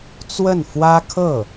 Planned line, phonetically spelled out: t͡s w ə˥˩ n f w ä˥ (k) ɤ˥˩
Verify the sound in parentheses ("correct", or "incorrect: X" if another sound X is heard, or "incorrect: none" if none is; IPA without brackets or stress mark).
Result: incorrect: kʰ